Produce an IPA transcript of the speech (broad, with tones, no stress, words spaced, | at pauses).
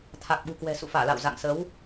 t̪ʰa˨˩k̚ɓṳ˨˩kwɛ̤˨˩ sṵ˧˨faː˧˩la̰ː˧˨w za̰˧˨ŋsə˨˦w